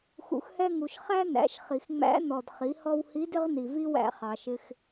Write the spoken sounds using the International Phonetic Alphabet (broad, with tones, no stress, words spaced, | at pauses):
xṵ˩xhɛ˧ŋu˩ʃ χæ˥næ̰˩˧ʃχi˩x ŋ͡mæ̰˧˥ nɔ˩d χi˩˧hɔ˧whi˧˥ dɪ˥ʁni˩vi˥wæ̰˧ χɑ˩ʃɪ˧x